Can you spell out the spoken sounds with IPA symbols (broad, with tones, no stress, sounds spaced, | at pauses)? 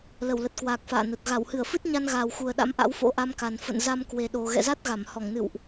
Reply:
l ə˧˩ w l ə˨˩ t̚ k w aː˨˩ k̚ f a̰ː˧˨ n ə˨˩ t̚ ɣ a˧˩ w h ɨ˧˩ ə̯ f ɨ˦˥ t̚ ɲ a˧ n ɣ aː˨˩ w x u˨˩ ə̯ ɗ a̰˧˥ m ʔ a̰˧˥ w f o̰˧˥ ʔ a˧ m k a˨˩ n f ə̰˧˨ n z a˧ m k w e˨˩ ɗ o˨˩ ɣ ɛ̰˧˨ z a˦˥ t̚ ɣ a˧˩ m h ɔ˧˩ ŋ n ɨ̰˧˨ w ʔ